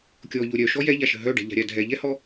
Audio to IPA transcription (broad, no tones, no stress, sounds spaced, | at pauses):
kʲ ɔ ʎ o ɾʲ œ ʃ ɔ j ɛ ʎ a ʃ ə̤ ɦ œ ɖ ɛ̤ ʎ a̤ ɾʲ a dʱ ɛ ʎ ɛ h ɔ